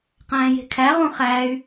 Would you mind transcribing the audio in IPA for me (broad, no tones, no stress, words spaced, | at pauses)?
qæ̃ːje̤kʰæ ʁũχæːy̯